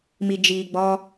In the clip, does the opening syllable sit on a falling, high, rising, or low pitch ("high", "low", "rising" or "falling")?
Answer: low